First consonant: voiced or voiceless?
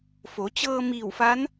voiceless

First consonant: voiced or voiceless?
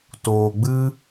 voiceless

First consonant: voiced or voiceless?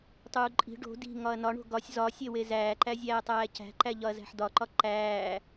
voiceless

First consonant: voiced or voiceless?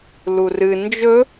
voiced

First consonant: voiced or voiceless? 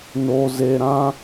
voiced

